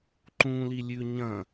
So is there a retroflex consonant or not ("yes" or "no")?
no